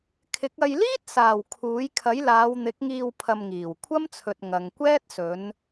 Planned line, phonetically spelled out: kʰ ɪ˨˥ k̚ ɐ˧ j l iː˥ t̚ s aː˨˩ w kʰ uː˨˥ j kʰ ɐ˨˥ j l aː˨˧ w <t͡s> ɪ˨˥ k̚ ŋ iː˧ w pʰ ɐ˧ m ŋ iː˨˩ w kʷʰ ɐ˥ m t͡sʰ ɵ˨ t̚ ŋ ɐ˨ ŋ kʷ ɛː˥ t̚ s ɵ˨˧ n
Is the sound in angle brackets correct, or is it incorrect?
incorrect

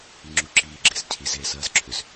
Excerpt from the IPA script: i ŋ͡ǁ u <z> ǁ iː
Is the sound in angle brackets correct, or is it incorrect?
incorrect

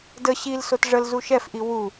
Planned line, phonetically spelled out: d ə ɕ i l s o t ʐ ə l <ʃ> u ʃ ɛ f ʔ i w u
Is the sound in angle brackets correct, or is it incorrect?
incorrect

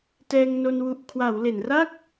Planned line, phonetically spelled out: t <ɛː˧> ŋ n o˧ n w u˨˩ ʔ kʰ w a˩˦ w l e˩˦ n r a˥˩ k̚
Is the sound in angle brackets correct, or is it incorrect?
correct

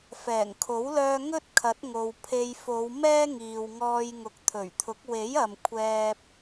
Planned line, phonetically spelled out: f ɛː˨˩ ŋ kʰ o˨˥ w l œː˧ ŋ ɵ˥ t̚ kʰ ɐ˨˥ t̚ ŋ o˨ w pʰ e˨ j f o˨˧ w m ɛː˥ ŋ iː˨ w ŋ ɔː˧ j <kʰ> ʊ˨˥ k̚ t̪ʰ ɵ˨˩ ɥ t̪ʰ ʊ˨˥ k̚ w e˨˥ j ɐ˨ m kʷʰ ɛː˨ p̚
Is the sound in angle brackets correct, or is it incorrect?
incorrect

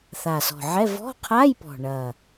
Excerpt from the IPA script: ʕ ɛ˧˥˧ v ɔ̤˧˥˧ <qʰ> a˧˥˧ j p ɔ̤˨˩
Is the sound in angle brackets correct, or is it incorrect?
correct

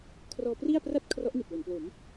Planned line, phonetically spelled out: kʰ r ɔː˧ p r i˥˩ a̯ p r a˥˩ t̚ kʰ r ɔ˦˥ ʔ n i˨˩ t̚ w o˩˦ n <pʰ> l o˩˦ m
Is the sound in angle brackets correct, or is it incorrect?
incorrect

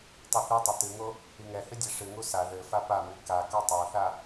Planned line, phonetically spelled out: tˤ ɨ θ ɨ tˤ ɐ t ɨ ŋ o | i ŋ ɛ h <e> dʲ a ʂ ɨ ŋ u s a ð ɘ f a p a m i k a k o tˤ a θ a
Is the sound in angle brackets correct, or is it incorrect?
incorrect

